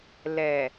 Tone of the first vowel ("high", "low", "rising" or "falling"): low